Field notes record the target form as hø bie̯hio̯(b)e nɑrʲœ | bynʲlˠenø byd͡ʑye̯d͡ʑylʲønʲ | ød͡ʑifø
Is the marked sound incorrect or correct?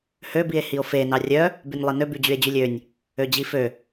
incorrect: f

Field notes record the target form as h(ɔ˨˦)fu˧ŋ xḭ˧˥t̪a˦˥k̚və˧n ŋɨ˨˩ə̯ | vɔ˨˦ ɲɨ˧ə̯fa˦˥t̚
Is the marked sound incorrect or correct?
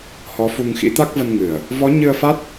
correct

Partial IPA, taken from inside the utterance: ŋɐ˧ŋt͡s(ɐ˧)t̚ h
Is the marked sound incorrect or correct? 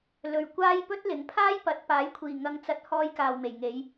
correct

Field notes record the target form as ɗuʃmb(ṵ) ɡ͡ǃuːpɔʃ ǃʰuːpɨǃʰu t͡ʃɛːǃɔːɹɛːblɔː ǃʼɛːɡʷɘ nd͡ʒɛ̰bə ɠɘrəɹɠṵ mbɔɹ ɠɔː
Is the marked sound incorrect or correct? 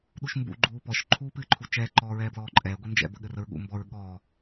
correct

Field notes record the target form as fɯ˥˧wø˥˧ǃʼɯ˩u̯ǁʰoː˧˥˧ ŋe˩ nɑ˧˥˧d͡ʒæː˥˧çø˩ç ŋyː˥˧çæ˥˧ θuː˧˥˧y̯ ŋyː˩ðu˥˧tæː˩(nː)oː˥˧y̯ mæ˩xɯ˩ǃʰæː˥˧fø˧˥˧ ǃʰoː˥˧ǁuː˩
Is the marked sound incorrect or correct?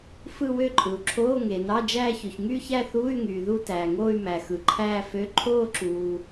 incorrect: ŋ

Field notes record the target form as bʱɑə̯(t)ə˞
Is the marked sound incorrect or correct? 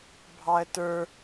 correct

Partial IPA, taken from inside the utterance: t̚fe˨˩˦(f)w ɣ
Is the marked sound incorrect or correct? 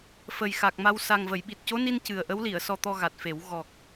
incorrect: none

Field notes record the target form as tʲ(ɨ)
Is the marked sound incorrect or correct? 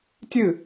correct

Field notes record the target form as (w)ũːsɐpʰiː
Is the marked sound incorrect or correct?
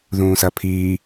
incorrect: ð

